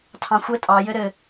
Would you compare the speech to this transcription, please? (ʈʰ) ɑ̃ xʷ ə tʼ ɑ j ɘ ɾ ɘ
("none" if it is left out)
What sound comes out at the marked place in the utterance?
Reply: tʰ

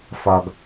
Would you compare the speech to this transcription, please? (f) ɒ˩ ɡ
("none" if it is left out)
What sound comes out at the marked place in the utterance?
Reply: f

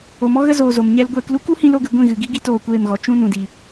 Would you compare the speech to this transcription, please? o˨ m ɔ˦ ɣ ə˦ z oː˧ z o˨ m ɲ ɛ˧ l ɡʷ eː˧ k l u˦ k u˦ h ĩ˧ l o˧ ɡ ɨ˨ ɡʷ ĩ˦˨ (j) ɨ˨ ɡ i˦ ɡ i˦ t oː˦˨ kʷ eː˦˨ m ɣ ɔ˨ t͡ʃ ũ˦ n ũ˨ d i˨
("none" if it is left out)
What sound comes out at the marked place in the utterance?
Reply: ɣ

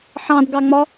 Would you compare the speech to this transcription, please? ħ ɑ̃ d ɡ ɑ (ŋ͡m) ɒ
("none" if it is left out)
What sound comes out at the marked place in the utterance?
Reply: ŋ͡m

